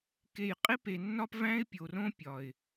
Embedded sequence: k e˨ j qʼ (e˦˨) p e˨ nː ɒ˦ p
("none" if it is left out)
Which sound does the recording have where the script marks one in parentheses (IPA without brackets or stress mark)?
e˦